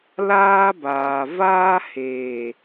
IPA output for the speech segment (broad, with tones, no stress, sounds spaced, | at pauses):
l aː˦ b aː˨ v aː˦ h eː˨